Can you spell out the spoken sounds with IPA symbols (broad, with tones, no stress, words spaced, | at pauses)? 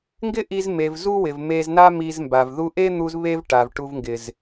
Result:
ŋɡɪ˦ʔi˧zme˨v zu˦wɪ˨vme˧zna˦ mi˧zmba˨vðu˦ ʔe˦n̪u˧z βe˦v ʈa˨vʈu˧vŋɡɪ˨z